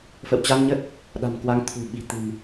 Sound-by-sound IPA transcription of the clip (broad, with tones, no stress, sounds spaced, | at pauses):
f ə̰˧˨ w t͡ɕ a˧ n ɲ ə˦˥ t̚ | ɗ a̤˨˩ m k w a˨˦ ŋ t̪ʰ ṳ˨˩ ɓ i̤˨˩ t̪ ɨ̤˨˩ m